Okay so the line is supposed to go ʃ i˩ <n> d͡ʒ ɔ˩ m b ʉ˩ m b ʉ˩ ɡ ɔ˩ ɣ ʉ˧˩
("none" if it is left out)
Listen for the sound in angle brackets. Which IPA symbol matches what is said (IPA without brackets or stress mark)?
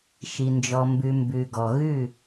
n